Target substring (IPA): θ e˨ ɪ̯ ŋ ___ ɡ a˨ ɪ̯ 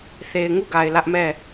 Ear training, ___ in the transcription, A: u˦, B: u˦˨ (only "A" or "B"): B